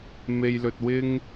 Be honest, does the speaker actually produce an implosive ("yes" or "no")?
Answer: no